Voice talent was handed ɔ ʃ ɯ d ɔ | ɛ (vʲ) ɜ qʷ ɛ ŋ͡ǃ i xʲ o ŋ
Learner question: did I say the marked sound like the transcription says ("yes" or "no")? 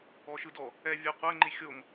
yes